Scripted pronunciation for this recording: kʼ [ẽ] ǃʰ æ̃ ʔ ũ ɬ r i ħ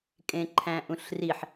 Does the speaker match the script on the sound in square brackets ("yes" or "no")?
yes